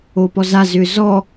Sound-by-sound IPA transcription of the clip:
opɔza zʏzɔ

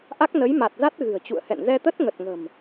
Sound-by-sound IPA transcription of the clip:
ʔa˦˥k̚nə˨˦jma˨˩t̚za˦˥t̚ ɣɨ̤˨˩ə̯t͡ɕṵ˧˨ə̯hɛ̰˧˨n zɛ˧t̪ə˦˥t̚ŋə˨˩t̚ŋə̤˨˩m

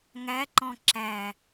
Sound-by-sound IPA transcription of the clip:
ŋæǃɔ̃ ǁæ

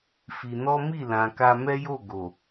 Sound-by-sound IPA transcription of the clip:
fi˧ nɔ˦mi˦˨lã˨ ka˧mɛ˦jo˦˨ ɡo˨

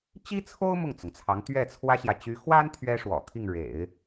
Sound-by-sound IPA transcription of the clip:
t͡ɕi˥t͡sʰo˥ʊ̯ mʊ˥˩ŋt͡sʊ˩ŋt͡sʰɑ˧˥ŋt̪ɥɛ˥˩ t͡sʰwä˥ɕjä˨ t͡ɕy˧˥xwa˥n t̪ʰɥɛ˥ʂwɔ̰˨˩t̪ʰi˥˩ŋ ɻḛ˨˩˦ɪ̯

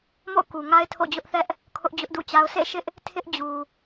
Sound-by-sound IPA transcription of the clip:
mo̰˦˨ʊ̯ku˨ŋa˦ɪ̯ tʰo̰˦˨d͡ʑʊ˦ʔθɛ˦ʔ | kʰʊ˦ʔd͡ʑʊ˦ʔdṵ˦˨t͡ɕa˦ʊ̯ sʰḛ˦˨ʃɪ˦ʔ | tʰɪ˦ʔ d͡ʑu˨

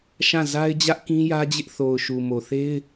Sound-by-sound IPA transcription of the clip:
ʃã˦˨ za˦ɪ̯ d͡ʑä˦ʔkĩ˦jä˦d͡ʑɪ˦ʔ θo˨ʊ̯ʃu˨ mo˨θe˦ɪ̯

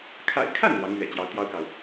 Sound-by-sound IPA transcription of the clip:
kʰa̰˨˩ɪ̯kʰa˥˩n lwɑ˧˥ŋlɥɛ̰˨˩t͡ɕjɑ˧˥ʊ̯ t̪jɑ˥ʊ̯kɑ˨ʊ̯

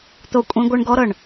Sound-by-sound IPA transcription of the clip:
t̪o˦˨kʷʼĩ˦ ɡʷɤ˦ɳ ɡɔ˦ɾɤ˨ɳ

